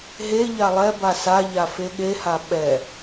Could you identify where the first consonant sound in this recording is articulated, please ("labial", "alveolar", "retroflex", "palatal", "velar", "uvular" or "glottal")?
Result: glottal